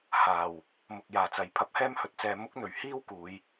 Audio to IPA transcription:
h aː˨˩ w | m ʊ˨ k̚ j aː˨˩ t͡s ɐ˨ j pʰ ɐ˧ p̚ h ɛː˥ m h ɵ˨˥ t̚ t͡s ɛː˧ m ʊ˥ k̚ n̪ ɵ˨˩ ɥ h iː˥ w k uː˨˧ j

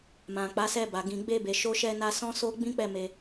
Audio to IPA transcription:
m ã˨ k͡p a˨˦ s ɛ˧ b a˨ ɡ ĩ˨ ɡ͡b e˧ b e˨ ʃ o˧ ʃ ɛ˧ n a˧ s ɔ̃˦ s o˦ ɡ͡b ĩ˦ k͡p ɛ˦˨ m e˧

